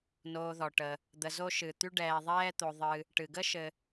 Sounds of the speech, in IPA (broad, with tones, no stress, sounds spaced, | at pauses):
n oː˨ ð ɔ˩ ʈ ə˩ | d̪ ə˨ z o˦ ʃ ɨ˩ t̪ y˦ ɖ ɛː˨ ðˤ ɛː˦ t̪ o˨ ðˤ ɨ˨ | ʈ ɨ˩ ɡ ə˥ ʃ ɘ˨